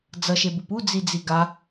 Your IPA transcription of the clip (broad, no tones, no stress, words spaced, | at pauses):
d͡zʌʃebup ud͡zid͡zi ɡa